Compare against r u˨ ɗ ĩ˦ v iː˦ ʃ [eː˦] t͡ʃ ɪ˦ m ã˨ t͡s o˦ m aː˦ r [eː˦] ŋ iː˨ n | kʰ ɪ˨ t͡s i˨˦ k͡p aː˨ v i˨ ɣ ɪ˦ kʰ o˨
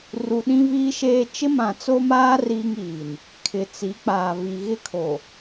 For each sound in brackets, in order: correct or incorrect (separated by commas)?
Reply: correct, incorrect